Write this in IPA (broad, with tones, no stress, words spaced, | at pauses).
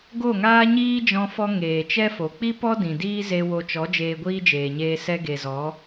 ɡo˦˨ŋaː˦ ɲiː˦d͡ʒɔ̃˧fɔ˧ ŋeː˨t͡ʃɛ˦fo˨ k͡pi˦pɔ˦ dĩ˨diː˦ze˧ wo˧t͡ʃɔ˨˦ d͡ʒeː˧ɡʷiː˦d͡ʒeː˨ɲeː˧ sɛ˧ɡe˨zɔ˨˦